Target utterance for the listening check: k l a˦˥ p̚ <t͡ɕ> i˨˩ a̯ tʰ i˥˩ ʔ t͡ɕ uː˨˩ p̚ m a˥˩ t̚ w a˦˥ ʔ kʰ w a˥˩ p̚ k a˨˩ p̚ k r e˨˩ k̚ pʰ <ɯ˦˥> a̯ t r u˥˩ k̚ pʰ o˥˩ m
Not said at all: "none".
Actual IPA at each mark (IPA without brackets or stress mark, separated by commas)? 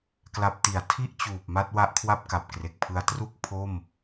t, ɯ˧